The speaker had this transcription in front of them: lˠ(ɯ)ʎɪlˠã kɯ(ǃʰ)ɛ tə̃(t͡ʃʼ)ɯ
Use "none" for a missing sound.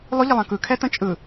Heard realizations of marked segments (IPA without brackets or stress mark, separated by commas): ʊ, kʰ, t͡ʃʼ